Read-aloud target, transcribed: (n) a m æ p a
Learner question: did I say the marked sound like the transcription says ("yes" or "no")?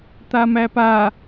no